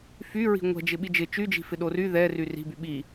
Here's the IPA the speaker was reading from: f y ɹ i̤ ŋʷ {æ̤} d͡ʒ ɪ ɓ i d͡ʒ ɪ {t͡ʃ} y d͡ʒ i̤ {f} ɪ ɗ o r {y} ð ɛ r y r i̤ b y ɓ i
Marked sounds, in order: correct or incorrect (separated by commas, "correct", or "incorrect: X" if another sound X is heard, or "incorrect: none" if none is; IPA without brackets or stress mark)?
incorrect: ɛ̤, correct, correct, correct